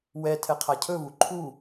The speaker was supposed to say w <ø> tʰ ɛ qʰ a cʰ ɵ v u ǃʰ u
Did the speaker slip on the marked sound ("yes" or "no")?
yes